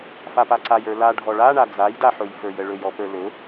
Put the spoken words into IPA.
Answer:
f a p a ǀ a j ə˞ l a ɖʱ ɔ ɭ a ɳ a d͡z a j d a ħ ɵ j f ə˞ j ə ɭ ɵ j ɔ p ə˞ l ɵ

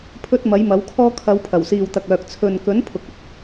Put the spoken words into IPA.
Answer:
pʰ ɵ˧ t̚ m ɐ˨˥ j m ɐ˨˥ w kʰ ɔː˥ kʰ ɐ˨˧ w pʰ ɐ˨˩ w s iː˨ w t̪ ɐ˨ k̚ œː˨ k̚ t͡sʰ ɵ˨ n k ɵ˨˥ n pʰ ʊ˨ k̚ ɵ˧ t̚

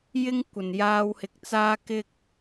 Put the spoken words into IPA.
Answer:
j ɪ˥ ŋ kʷ ɐ˨˩ n j aː˧ w h ɪ˨ k̚ t͡s aː˥ k ɪ˥ k̚

